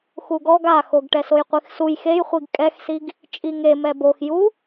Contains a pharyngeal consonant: no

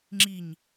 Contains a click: yes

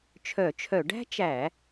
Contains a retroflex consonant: yes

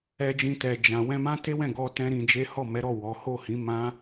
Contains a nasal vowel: yes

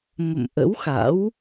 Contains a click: no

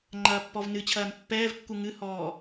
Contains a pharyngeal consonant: no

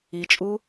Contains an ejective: yes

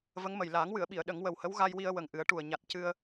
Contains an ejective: no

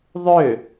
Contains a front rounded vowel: yes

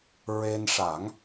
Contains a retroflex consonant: yes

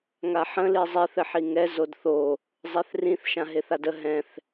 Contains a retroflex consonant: no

